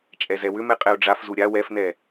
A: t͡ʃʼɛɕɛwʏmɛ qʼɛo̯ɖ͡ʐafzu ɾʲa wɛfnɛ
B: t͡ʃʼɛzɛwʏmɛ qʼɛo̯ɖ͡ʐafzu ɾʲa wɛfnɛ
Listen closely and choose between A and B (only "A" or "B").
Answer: B